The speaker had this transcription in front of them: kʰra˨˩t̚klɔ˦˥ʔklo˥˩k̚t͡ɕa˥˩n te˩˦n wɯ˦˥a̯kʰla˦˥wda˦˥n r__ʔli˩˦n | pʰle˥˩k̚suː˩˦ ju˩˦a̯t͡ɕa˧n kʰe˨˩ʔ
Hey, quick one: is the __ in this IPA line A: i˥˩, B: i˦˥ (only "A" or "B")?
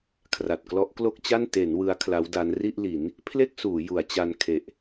A